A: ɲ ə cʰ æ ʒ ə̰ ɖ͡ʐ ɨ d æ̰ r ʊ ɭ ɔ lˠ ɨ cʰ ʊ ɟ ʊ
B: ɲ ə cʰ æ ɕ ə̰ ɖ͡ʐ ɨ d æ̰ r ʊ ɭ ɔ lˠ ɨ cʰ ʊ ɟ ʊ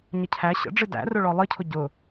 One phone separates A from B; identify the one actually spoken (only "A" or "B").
B